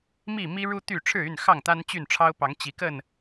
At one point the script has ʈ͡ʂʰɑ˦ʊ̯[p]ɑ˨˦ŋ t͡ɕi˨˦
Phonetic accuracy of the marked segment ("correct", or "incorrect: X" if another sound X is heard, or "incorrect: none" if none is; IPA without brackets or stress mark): correct